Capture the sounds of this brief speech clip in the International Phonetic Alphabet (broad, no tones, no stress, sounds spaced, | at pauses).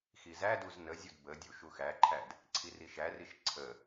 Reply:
x i z æ d u z n ə zʲ u d b ə dʲ u ʃ u x æ ǃʰ æ d | ǀʰ i r i ʃ æ r i ʃ ǀʰ ə